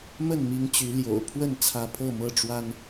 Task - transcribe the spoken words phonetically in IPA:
mə˥˨n mi˦ŋt͡ɕy˨˦ ljo̰˨˩ʊ̯ pʰwə˥˨nt͡sʰä˨˦ pʰɤ˥˨mɤ˥˨ʈ͡ʂwa˦n

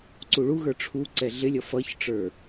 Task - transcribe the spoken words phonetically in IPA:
ǀuɭuɣə˞ ʈ͡ʂʰu ǀɛɮɪlʲʌ fʌçʈ͡ʂə˞

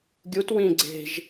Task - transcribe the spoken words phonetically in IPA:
ɡʲut wĩ ɡ͡ǀe̤ʒ

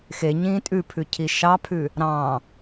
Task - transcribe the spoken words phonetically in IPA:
xeɲĩː tʼʉpʰʉcʰi ʃɑpʰʉ | ɾɑ̃

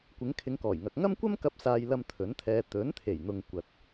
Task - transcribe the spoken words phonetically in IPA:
kʷɪ˨˧ŋkʰɪ˨˧ŋkɔː˨˩jŋɐ˨k̚ ŋɐ˥mkʷɐ˥mkɐ˧p̚ saː˧jlɐ˧m t̪ʰɵ˨˥nt̪ʰɛː˧ t̪ɵ˨˥nt̪ʰe˨˩jn̪ʊ˨ŋ kʷɐ˨t̚

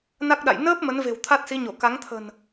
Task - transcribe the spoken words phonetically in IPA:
na˦˥k̚ɗa̰˧˨j nəː˦˥p̚ mə˨˦nve̤˨˩w t̪ʰa˦˥t̚si˨˦ɲo˧˩ ka˨˦ŋt̪ʰə̤˨˩n

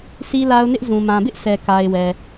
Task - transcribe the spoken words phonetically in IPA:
si˦la˦ʊ̯nɪ˦ʔ zũ˨mã˨bɪ˦ʔsɛ˨ ka˨ɪ̯ wɛ˨

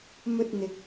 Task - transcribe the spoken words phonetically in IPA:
mɵ˧t̚n̪ɪ˨k̚

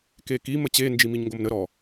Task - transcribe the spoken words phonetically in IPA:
keki mət͡ɕe nd͡ʒimiɲŋɡomnə ɾɔ

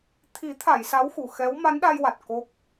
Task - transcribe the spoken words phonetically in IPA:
t̪ʰi˨˩˦t̪ʰa˨˩˨j sa˧˥wxu˨˩˨ xɛ˧˥w ma˧˥nɗa˧jwa˨˩t̚ ko˦˥k̚

